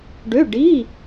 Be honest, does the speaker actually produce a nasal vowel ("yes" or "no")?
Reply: no